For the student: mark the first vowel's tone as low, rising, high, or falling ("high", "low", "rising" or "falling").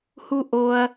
high